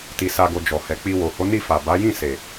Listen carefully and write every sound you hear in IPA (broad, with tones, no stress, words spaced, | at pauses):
ti˧sa˧ɡo˧ d͡ʒɔ˨hɛ˨k͡pi˧ wo˨ho˨˦ni˦˨ fa˨ ba˨˦jĩ˦˨ se˨